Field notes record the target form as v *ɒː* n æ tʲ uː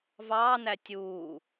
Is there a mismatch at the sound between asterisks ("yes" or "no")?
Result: yes